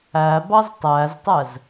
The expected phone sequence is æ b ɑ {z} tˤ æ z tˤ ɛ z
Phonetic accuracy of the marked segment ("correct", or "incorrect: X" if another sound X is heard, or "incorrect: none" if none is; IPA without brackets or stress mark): correct